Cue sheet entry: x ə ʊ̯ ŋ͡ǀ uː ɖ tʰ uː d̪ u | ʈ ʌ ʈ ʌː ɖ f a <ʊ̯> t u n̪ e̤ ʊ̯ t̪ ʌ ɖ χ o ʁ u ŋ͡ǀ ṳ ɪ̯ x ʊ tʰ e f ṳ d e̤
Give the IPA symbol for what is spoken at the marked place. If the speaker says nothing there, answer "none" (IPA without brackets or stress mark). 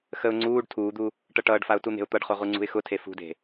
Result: ʊ̯